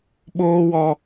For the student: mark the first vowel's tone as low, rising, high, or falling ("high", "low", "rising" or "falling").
high